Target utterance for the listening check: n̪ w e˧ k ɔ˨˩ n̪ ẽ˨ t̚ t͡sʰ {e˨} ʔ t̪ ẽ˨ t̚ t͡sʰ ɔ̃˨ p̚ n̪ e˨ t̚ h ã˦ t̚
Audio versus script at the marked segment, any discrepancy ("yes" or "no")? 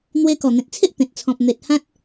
yes